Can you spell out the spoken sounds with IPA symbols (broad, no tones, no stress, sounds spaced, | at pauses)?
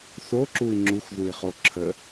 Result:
θ o ǁ u i̯ ŋ͡ǁ u x ð u i̯ χ o ǁʰ ə